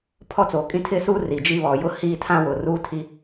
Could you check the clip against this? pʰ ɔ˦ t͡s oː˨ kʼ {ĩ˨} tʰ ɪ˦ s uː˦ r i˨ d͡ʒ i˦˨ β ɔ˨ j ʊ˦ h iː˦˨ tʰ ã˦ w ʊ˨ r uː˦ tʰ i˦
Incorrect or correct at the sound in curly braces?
incorrect: ĩ˦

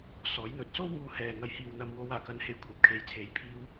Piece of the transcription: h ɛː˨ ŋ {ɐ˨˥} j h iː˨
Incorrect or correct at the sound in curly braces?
incorrect: ɐ˨˧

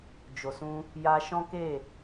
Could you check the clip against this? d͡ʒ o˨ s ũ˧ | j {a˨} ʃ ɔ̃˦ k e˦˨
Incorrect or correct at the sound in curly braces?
incorrect: a˧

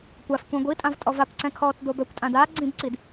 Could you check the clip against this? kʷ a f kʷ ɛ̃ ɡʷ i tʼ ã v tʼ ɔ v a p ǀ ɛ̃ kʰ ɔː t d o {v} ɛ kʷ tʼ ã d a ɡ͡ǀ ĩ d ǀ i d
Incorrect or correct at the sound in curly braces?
incorrect: b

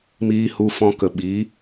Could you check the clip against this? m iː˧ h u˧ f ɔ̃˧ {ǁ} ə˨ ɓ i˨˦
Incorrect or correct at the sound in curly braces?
incorrect: k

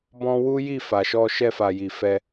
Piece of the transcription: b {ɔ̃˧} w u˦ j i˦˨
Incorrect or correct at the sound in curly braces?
correct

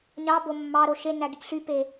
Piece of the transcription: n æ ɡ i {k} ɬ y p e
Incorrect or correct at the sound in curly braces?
correct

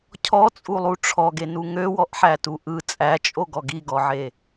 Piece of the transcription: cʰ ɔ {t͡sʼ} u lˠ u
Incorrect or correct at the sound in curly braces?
correct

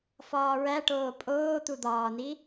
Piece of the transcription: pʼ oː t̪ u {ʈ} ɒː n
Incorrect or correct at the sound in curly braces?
incorrect: d̪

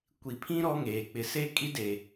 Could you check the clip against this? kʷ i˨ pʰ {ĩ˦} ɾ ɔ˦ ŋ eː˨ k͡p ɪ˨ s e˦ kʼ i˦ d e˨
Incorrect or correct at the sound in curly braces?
correct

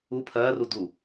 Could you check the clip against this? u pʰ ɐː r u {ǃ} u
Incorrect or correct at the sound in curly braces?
incorrect: d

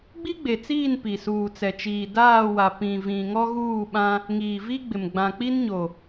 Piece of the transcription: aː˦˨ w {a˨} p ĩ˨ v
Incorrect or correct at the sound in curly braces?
correct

